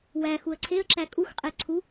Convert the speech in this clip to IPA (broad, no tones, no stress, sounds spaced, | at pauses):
w æ x u ə̯ ǀʰ e ə̯ ǁ æ kʼ u x qʼ e ǀʰ u